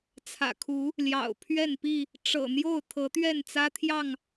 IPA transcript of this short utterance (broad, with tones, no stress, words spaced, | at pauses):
t͡sʰä̰˨˩kʰu˨˦ | ljɑ̰˨˩ʊ̯pʰɥɛ˥˨npi˥˨ | ʈ͡ʂɤ̰˨˩n̪jo˥˨ʊ̯ t̪ʰɤ˨˦t̪ɥɛ˥˨nt͡sä˦t̪ʰjɑ˥˨ŋ